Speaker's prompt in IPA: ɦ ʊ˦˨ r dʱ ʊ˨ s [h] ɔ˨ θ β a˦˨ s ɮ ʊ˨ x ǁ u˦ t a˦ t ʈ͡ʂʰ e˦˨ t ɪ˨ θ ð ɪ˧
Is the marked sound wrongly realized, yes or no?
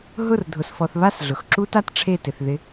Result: yes